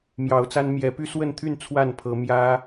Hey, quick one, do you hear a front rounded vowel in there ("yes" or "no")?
yes